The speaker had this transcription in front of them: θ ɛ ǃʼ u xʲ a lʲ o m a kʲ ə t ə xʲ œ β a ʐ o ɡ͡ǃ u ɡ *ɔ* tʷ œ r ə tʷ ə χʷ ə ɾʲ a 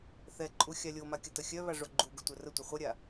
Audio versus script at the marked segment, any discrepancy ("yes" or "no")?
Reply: yes